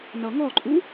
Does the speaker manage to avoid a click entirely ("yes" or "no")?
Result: no